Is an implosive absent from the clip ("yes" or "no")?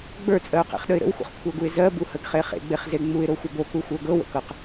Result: no